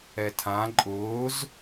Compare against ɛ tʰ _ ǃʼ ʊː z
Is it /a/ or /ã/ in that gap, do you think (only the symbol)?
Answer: ã